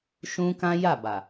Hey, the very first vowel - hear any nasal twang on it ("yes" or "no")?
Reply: yes